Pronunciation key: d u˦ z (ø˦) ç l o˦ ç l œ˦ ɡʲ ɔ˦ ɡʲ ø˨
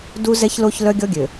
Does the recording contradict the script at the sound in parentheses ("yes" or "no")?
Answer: yes